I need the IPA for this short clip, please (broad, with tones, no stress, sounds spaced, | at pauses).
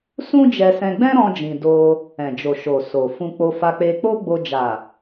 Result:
s ũ˦ d͡ʒ ɛ˧ s ɛ̃˧ ɡ͡b ɛ̃˦ ɾ ɔ̃˦ d͡ʒ ĩ˧ d o˧ | ɛ̃˨ d͡ʒ o˨ ʃ o˨ s o˨ f ũ˧ k͡p o˧ f a˧ k͡p e˧ k͡p o˦ ɡ͡b o˧ d͡ʒ a˨